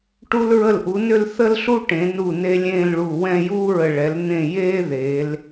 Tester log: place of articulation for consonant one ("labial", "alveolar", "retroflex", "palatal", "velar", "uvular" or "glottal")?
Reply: retroflex